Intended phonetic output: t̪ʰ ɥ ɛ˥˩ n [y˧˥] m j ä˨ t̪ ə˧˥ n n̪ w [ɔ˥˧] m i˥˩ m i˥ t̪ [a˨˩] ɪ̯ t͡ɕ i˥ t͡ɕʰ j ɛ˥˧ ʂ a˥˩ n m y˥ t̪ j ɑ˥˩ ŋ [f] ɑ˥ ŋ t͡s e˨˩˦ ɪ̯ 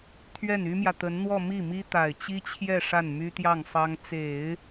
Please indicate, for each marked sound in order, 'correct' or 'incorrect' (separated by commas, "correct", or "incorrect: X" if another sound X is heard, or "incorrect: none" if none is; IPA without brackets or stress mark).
incorrect: y˥, correct, correct, correct